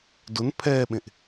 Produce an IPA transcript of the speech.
d ʊ n pʰ ɛː ɓ ẽ ʔ

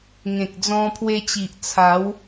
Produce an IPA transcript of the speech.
ŋ ẽ˨ k̚ d͡z ɔ̃˧ pʰ w e˧ t͡ɕ i˨ ʔ t͡sʰ a˨˦ w

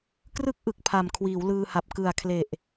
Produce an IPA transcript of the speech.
k r ɯ˥˩ k̚ ʔ ɯ˨˩ k̚ pʰ a˨˩ m kʰ w iː˩˦ w l ɯː˧ h a˨˩ p̚ k ɯ˨˩ a̯ kʰ l e˨˩ ʔ

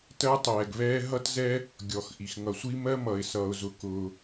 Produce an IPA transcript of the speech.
t ɜ˥ tˤ ɛː˩ ɡ β ɛː˥ ɦ ʌ˥ t z ɛ˥ | ɡʲ ɔ˩ x ʔ i˩ x ŋ ʌ˩ sʷ i˥ m ɜ˥ m ʌ˩ ɪ̯ s ʌː˩ ʊ̯ z ʊ˩ k ʊː˩

